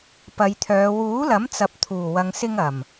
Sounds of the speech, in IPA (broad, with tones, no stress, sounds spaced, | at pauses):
p ɐ˨˧ j t̪ʰ œː˨˧ w uː˨˥ l ɐ˨˥ m t͡s ɐ˨ p̚ t̪ʰ uː˨˩ w ɐ˨ ŋ s ɪ˧ ŋ ɐ˨˩ m